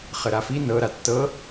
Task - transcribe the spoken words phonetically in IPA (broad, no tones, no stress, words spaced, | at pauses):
χəɾafi nɤ ɾatːɤ